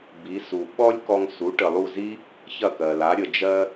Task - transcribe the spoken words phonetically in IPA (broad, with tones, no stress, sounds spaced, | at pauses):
b i˩˥ s u˩ ɓ ɔ˥ lʲ k ɔ˧ ŋ s u˩˥ ʈ ə˩ lˠ u˥˩ z i˥ | ç ɐ˥˩ k ɜ˩ l a˩˥ ɾʲ ə˩ d͡ʒ ɜ˧